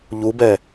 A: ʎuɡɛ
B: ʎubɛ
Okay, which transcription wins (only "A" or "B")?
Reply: B